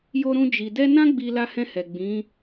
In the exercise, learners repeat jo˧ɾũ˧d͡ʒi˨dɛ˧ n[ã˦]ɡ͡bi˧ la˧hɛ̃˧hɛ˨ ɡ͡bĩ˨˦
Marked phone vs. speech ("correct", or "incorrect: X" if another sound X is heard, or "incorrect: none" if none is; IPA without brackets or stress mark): correct